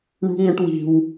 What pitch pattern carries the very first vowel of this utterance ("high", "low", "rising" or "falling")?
high